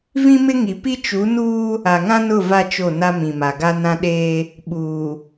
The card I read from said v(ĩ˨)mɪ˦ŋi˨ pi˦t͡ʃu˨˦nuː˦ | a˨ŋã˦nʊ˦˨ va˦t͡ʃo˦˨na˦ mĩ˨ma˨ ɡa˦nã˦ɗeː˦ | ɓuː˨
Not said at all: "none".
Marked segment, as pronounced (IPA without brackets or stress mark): ĩ˦